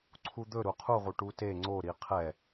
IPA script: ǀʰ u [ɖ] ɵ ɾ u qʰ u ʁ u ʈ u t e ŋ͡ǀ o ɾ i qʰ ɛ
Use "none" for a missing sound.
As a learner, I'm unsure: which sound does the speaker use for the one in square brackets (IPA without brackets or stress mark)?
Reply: d̪